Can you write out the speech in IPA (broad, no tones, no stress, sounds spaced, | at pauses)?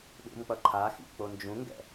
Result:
ɗ ṵ m k͡p ʌ ǃʰ a x ḭ k͡p o n d͡ʒ ũ ŋ ɡ ɛ̰